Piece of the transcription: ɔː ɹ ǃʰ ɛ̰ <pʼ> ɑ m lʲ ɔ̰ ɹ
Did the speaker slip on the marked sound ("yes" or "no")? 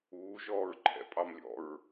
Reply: no